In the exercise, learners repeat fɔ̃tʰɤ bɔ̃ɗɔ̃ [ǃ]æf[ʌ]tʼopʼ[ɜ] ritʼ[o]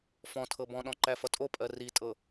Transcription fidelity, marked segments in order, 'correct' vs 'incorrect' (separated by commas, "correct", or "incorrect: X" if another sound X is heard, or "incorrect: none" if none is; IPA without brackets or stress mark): correct, correct, correct, incorrect: ɤ